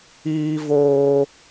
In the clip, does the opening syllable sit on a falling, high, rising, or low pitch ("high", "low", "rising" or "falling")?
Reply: high